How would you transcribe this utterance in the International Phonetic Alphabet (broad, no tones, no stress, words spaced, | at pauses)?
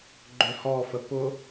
ɡ͡ǃøhɔfə pʊ